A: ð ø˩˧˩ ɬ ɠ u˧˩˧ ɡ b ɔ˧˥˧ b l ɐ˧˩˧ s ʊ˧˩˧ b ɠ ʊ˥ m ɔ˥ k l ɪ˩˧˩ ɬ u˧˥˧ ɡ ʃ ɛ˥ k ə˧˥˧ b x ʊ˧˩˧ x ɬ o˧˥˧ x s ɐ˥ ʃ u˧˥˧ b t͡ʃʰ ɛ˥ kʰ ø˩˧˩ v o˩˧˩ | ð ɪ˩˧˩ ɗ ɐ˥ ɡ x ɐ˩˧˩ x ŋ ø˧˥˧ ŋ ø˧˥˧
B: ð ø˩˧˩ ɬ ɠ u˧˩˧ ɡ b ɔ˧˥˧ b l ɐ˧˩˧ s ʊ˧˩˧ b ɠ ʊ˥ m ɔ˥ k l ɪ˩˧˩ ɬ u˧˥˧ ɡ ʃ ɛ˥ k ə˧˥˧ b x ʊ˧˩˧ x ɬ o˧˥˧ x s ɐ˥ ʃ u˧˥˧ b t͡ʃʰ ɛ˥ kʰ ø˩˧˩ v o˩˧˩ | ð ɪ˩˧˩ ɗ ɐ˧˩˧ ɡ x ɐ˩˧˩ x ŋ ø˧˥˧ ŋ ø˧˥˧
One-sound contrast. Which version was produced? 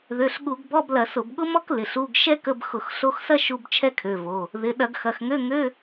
B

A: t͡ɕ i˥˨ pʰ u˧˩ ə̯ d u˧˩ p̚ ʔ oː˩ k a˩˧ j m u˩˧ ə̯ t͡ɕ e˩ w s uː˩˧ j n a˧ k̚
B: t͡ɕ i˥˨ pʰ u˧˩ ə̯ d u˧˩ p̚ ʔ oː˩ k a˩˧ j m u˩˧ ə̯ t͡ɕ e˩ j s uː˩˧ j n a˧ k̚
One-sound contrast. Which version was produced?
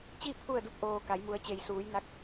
B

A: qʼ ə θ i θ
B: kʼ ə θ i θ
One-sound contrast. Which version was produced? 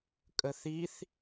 B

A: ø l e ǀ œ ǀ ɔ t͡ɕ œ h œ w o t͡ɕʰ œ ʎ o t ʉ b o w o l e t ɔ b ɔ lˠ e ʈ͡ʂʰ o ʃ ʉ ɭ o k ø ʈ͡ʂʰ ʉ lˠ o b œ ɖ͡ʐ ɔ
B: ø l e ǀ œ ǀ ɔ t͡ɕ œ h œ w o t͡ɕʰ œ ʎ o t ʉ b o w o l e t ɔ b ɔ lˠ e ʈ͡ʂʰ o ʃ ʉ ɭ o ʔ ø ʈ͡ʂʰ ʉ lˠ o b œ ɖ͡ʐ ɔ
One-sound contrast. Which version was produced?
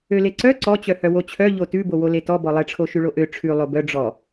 B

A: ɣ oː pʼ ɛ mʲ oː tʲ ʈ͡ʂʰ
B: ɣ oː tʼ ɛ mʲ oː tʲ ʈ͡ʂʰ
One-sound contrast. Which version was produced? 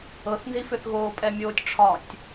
A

